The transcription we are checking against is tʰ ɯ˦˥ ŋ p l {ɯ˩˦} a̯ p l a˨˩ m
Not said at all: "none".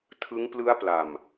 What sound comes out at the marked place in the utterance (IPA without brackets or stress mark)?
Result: ɯ˦˥